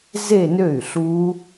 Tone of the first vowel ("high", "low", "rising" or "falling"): falling